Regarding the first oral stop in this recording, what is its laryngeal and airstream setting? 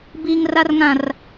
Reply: plain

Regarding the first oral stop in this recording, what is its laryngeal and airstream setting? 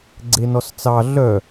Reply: click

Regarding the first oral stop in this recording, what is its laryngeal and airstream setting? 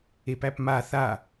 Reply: plain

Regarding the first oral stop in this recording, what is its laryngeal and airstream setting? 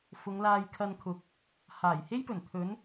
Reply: aspirated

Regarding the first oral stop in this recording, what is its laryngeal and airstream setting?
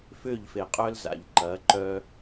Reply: ejective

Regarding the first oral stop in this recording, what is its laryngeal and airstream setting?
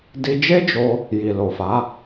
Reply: plain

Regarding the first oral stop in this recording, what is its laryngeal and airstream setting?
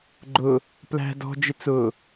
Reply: click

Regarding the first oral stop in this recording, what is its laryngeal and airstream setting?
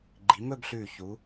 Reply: click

